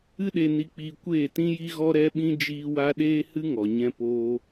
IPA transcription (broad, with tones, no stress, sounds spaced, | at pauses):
ɨ˦ ɗ e˧ n i˧ k͡p iː˧ kʷ eː˦˨ t ĩ˦ j i˦ ɣ ɔ˦ ɾ ɛ˦ ɓ ĩ˦ d͡ʒ iː˦ w a˦ ɗ eː˦ h ɨ˦ ŋ ɔ˨ ɲ ɛ̃˧ p oː˧